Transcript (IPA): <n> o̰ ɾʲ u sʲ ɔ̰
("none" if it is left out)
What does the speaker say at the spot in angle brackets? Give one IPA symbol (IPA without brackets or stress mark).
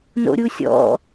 n